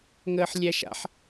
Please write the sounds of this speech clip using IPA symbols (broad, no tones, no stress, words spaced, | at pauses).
ŋəːħlʲæʃa̰ħ